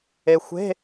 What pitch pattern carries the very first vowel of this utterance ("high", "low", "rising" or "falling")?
low